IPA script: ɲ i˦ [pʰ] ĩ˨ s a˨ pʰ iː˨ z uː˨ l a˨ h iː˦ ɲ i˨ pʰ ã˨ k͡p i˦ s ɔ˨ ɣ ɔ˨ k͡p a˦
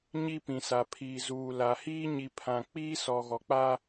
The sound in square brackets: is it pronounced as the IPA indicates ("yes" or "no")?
no